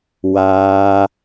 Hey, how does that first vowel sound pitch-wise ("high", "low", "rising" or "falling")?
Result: high